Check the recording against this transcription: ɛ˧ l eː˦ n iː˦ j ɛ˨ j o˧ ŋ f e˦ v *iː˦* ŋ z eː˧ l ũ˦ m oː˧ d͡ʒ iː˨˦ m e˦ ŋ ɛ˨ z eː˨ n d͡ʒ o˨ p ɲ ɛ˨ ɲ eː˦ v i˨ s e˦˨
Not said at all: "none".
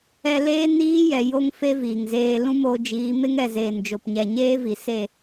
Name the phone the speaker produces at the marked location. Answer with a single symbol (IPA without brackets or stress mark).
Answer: iː˨